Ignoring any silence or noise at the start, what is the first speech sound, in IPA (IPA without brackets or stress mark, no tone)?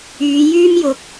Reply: yː